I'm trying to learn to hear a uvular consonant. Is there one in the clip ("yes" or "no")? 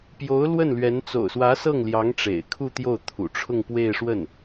no